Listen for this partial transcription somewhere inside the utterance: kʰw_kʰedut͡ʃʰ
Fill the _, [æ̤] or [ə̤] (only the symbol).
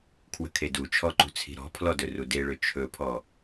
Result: ə̤